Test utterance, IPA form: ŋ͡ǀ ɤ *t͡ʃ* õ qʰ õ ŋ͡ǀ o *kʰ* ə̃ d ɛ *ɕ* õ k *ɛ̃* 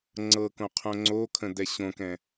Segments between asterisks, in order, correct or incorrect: incorrect: k, correct, correct, correct

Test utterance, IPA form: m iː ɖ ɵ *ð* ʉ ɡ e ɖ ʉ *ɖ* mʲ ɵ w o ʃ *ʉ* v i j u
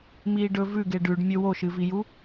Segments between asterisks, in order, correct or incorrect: incorrect: v, correct, incorrect: ɨ

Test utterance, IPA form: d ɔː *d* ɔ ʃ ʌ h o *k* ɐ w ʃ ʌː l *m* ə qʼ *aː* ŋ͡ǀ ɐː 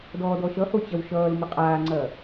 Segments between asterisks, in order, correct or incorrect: correct, incorrect: t͡ɕ, correct, correct

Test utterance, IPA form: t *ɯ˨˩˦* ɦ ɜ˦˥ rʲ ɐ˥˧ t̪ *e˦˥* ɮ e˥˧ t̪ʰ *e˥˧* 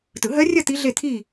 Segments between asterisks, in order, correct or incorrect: correct, incorrect: i˦˥, incorrect: i˥˧

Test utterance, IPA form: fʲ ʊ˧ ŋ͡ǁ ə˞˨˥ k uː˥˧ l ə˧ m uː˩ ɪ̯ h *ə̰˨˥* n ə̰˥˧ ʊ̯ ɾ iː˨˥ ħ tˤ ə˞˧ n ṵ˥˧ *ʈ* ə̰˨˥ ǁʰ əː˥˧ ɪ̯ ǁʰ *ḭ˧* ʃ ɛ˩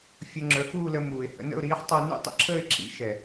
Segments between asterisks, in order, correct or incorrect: correct, incorrect: tˤ, incorrect: ḭ˨˥

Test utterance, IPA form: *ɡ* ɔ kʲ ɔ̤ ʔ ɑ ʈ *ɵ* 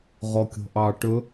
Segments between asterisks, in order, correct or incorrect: incorrect: ʁ, correct

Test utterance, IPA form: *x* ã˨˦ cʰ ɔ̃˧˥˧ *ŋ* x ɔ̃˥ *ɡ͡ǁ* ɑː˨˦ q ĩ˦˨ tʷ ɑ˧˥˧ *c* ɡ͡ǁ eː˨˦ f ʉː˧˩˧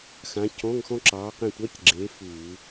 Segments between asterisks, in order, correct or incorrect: correct, correct, incorrect: ǁ, correct

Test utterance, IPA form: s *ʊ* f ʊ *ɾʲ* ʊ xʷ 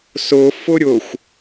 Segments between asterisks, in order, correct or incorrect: correct, correct

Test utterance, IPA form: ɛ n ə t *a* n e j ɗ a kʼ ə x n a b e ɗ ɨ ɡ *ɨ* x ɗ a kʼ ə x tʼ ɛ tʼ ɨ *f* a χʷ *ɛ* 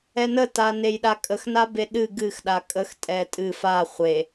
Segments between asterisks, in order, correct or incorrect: correct, correct, correct, incorrect: e

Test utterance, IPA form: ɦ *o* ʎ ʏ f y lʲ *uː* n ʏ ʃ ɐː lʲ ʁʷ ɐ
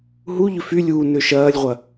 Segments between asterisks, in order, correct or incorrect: incorrect: u, correct

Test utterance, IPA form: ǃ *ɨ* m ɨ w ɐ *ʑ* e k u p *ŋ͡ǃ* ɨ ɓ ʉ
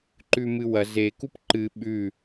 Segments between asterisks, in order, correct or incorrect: incorrect: ʉ, incorrect: z, incorrect: ǃ

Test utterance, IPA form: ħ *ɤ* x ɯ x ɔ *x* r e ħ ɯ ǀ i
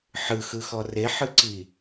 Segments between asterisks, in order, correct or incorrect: incorrect: ɯ, incorrect: none

